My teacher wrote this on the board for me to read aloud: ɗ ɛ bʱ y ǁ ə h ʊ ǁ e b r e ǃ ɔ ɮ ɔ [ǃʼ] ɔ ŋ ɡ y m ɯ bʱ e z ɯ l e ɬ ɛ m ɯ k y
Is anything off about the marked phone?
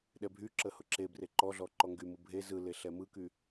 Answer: yes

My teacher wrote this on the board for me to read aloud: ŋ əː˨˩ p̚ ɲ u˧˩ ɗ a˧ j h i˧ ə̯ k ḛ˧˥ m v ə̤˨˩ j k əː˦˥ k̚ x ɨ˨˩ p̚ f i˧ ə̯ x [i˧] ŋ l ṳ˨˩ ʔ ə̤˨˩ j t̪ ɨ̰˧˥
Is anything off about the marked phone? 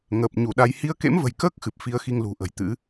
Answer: no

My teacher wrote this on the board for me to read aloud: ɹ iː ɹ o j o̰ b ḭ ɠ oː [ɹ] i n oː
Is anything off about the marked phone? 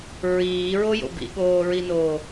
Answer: no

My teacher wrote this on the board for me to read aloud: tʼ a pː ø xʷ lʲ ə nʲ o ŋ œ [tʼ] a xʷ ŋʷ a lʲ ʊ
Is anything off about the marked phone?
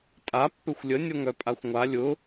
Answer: yes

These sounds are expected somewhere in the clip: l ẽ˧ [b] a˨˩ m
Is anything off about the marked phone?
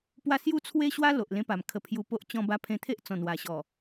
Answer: yes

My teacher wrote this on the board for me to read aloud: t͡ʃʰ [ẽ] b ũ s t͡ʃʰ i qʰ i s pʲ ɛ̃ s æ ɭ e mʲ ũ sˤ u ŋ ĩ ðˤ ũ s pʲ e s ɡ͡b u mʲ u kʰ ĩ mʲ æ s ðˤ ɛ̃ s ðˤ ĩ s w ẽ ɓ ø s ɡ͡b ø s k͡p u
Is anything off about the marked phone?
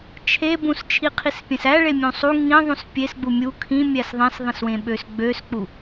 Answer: yes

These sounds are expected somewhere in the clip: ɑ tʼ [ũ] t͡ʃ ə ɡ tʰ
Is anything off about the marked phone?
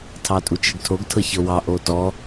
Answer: yes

